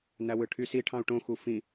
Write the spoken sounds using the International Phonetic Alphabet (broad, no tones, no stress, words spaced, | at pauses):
næwɯʈʰysi ʈʰɑ̃u̯ʈõ xufĩ